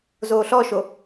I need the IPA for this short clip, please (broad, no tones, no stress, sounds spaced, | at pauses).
z oː ɬ ɔ ʃ o